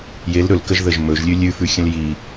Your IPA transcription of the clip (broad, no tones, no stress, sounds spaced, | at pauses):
j e l ɾ ɵ l k ə ʒ ð ə ʒ m ɵ ʒ lʲ ʉ lʲ ʉ f ʉ xʲ ə̃ l j i